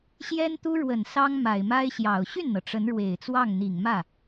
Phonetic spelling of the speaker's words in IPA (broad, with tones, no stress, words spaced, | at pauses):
ɕjɛ˥nt̪u˥ɻwə˨˩n sɑ˥ŋ ma˨˩ɪ̯ma˥ɪ̯ɕjɑ˨˩ʊ̯ ɕy˥˩nn̪ɤ˩ ʈ͡ʂə˧˥nɻwe˨˩ɪ̯t͡swɑ˥˩ŋ n̪i˨˩ŋmä˥˩